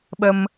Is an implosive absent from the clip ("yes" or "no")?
no